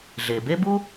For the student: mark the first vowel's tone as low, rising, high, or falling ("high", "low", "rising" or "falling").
low